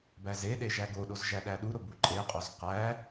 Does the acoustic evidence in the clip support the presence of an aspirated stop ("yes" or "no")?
no